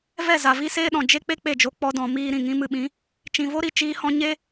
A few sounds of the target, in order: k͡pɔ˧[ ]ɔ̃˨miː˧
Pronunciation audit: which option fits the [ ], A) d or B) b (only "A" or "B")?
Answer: A